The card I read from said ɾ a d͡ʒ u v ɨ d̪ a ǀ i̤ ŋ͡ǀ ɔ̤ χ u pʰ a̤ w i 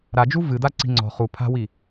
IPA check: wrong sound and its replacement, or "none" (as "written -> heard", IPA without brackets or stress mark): none